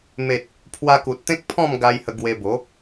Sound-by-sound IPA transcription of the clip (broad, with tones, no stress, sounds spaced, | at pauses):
m e˨ t̚ | pʰ w a˧ k u˨ t̚ t̪ ẽ˦ k̚ pʰ ɔ̃˥˧ m ɡ a˧ j h ə˧ ɡ w e˧ b o˨˦